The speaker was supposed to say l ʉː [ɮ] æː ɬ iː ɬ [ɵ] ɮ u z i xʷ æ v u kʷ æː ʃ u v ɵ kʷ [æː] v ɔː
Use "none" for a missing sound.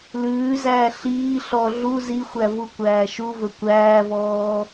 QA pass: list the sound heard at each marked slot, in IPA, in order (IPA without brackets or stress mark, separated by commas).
z, ɔ, æː